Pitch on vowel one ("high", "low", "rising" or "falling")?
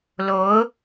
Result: rising